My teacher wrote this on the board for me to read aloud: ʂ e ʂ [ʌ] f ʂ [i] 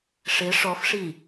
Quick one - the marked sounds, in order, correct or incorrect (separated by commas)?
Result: incorrect, correct